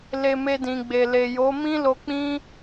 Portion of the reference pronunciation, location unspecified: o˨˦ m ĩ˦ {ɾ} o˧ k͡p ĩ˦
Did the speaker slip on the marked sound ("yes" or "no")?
yes